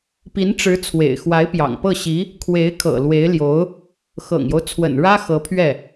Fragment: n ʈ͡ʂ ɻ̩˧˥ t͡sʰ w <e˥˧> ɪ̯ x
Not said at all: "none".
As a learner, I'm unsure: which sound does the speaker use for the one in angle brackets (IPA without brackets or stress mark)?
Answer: ḛ˨˩